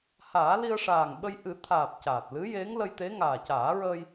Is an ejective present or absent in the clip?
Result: absent